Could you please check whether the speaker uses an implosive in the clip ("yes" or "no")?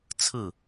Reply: no